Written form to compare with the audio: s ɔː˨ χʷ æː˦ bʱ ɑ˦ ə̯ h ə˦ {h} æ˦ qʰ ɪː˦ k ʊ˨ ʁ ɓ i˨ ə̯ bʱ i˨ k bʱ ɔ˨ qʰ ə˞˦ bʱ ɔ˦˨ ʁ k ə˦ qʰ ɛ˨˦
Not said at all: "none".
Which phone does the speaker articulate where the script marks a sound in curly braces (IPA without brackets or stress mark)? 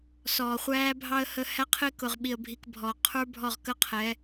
h